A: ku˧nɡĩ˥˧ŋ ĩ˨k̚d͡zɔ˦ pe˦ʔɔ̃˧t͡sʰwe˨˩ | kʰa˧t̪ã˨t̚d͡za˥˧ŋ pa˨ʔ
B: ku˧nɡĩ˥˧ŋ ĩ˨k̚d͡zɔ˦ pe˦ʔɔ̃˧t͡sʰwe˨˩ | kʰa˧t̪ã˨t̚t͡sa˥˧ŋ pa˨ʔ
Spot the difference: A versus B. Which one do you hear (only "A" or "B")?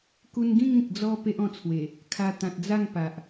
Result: A